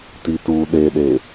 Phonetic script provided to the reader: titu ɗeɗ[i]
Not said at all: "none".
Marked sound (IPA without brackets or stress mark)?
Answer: e